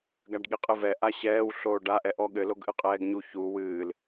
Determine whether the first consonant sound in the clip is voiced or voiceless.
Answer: voiced